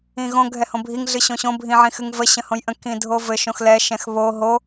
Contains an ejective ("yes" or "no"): no